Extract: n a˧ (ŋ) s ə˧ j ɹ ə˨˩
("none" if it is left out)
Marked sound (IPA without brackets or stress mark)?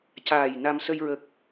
m